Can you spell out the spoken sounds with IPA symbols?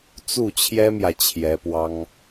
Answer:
t͡s u˥˩ t͡ɕʰ j ɛ˥ m j ä˨ t͡ɕʰ j ɛ˧˥ p w ɑ˥ ŋ

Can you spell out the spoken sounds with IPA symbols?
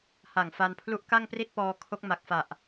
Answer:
h a˨˩ ŋ f a˧ n pʰ l u˦˥ ʔ k a˥˩ ŋ p r i˥˩ t̚ p ɔː˧ kʰ o˦˥ k̚ m a˨˩ k̚ f a˨˩ ʔ

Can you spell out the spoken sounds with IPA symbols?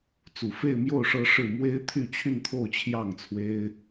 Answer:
t͡s u˨˩ f e˥˧ ɪ̯ m j o˥˩ ʊ̯ ʂ ɤ˥ ʂ ɻ̩˥˩ m w e˥ ɪ̯ t̪ʰ y˥˧ t͡ɕʰ y˥˧ n t̪ʰ o˥˧ ʊ̯ t͡ɕʰ j ɑ˥˩ ŋ t͡sʰ w e˥ ɪ̯

